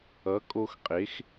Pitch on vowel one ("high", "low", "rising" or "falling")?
rising